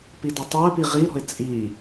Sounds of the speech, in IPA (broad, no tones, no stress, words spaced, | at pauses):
pidɒtˤoə̯pi ʁiɾɔ̤ɪ̯ t͡sʼi